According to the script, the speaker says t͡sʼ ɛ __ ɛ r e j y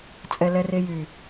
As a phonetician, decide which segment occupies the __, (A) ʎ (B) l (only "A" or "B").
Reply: B